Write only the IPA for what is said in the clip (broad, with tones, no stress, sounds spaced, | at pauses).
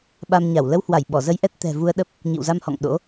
ɓ a˧ m ɲ a˧˩ w l ə˧ w h w a˧˩ j ɓ ɔ˧˩ z ə˧ j ʔ ɛ˦˥ t̚ t̪ ɛ̤˨˩ v u˧ ə̯ ɗ ə˦˥ p̚ | ɲ ḭ˧˨ w z a˧ m h ɔ̰˧˨ ŋ ɗ o̰˧˥